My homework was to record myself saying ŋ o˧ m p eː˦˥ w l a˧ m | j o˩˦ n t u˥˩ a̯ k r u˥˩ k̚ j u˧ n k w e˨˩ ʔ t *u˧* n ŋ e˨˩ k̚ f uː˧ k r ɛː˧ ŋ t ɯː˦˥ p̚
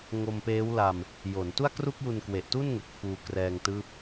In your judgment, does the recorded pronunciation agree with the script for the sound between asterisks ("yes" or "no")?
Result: no